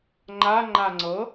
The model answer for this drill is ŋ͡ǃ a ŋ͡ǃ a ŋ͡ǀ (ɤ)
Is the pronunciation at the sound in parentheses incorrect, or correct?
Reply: correct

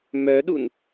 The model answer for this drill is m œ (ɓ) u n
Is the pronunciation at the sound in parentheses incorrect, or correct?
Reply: incorrect: ɗ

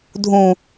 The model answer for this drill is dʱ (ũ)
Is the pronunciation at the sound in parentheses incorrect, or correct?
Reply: correct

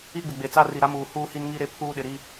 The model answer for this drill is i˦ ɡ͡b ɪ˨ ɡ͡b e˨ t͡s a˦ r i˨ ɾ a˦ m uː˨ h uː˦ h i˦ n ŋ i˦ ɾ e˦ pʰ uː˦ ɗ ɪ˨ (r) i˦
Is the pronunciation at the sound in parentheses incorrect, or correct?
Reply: incorrect: ɾ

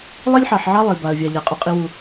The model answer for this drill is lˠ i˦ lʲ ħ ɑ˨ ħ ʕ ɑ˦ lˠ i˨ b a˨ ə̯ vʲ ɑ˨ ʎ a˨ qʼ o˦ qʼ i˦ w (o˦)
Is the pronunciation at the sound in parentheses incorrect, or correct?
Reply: incorrect: u˦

